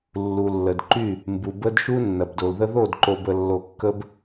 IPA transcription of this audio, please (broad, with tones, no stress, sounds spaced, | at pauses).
lː u˨ lː ə˨ d ǃ y˦˨ | m b u˨ b ə˦ d ʃ u˦ nː ɐ˨ b d o˨ l ð ə˦ ð o˦˨ d ǃ o˨ b ə˨ lː o˨ kː ə˦ b